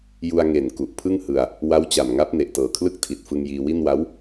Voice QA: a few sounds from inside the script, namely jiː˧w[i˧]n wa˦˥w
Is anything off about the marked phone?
yes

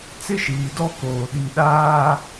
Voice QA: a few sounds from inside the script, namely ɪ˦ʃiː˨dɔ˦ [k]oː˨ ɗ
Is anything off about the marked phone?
no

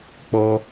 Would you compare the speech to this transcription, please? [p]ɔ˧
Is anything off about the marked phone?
yes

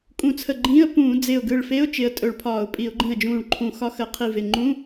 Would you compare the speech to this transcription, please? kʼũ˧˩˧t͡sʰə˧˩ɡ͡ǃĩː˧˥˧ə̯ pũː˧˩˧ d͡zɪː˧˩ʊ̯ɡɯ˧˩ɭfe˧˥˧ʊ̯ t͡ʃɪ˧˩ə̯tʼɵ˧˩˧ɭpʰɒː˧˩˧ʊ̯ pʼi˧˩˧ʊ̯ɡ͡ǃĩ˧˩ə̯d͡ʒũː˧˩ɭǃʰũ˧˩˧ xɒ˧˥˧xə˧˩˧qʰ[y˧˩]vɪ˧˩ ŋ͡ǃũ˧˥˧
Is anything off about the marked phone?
yes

